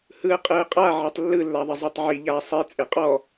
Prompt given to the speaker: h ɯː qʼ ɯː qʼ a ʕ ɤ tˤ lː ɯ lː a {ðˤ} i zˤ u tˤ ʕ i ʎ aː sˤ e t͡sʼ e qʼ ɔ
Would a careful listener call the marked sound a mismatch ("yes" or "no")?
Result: no